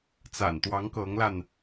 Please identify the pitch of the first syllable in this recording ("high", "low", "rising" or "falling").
low